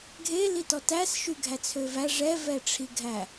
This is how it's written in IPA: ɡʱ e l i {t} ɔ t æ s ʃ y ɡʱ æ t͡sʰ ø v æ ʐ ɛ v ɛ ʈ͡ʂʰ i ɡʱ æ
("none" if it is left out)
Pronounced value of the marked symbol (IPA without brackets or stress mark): t